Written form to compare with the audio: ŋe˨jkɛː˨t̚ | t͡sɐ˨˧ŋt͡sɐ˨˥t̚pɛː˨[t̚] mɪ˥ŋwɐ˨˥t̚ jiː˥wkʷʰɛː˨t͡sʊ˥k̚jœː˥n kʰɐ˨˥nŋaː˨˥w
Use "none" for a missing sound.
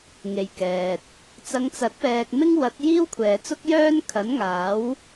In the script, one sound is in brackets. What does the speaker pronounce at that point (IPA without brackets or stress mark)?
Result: k̚